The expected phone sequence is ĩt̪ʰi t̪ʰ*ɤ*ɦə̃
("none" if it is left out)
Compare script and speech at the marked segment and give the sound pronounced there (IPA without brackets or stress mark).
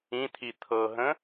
ɤ